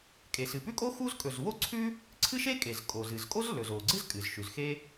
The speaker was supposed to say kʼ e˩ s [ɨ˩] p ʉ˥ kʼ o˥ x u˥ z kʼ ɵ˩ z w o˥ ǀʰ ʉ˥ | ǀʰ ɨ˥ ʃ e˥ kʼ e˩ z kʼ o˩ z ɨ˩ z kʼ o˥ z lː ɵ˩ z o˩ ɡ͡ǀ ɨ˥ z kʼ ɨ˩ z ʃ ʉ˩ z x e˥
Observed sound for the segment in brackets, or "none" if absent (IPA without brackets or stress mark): ɨ˩